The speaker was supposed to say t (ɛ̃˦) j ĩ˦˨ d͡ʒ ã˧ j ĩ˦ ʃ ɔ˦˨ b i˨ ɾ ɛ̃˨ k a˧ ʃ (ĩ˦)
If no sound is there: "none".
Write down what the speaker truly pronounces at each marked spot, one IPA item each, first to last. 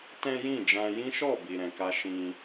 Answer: ɛ̃˦, ĩ˦

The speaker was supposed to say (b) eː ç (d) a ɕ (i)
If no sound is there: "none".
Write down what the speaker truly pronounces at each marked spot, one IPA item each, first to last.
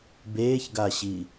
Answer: b, ɡ, i

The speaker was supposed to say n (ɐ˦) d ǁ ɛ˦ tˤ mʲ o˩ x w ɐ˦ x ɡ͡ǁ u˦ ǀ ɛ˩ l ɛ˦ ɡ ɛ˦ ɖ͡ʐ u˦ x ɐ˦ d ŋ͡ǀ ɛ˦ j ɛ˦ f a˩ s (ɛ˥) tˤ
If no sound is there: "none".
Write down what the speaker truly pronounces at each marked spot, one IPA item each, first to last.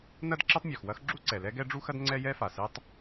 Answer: ɐ˥, ɛ˦

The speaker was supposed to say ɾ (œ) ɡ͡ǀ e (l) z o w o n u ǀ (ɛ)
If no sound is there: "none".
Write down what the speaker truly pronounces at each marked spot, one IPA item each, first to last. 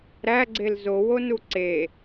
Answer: æ, l, e

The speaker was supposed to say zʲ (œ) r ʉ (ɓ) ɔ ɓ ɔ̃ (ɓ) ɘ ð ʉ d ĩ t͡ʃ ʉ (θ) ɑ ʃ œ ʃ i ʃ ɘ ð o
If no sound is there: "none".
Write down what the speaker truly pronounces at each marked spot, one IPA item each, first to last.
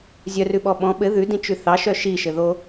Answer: œ, ɓ, ɓ, θ

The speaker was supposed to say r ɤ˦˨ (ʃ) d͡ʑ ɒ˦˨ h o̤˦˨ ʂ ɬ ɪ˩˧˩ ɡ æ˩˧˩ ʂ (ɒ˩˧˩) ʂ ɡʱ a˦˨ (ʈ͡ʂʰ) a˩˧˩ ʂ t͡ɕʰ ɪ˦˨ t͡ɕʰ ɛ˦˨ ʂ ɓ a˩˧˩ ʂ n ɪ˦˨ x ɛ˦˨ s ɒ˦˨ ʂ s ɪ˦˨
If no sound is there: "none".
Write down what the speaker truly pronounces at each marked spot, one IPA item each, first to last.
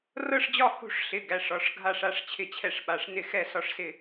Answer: ʂ, ɒ˩˧˩, ʂ

